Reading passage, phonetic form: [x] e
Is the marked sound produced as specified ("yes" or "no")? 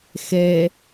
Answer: yes